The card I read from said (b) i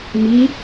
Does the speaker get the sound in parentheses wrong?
yes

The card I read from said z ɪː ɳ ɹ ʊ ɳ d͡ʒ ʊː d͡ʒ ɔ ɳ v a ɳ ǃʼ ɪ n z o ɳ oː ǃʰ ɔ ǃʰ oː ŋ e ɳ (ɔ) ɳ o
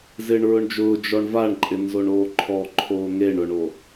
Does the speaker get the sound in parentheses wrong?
yes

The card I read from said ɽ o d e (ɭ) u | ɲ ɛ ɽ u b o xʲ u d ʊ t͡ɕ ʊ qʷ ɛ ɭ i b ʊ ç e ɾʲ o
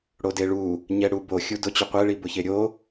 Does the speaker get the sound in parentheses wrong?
no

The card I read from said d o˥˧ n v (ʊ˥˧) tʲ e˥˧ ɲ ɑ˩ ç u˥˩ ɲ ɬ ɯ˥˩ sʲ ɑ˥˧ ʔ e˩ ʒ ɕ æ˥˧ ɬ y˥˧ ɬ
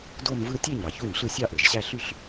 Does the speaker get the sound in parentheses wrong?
yes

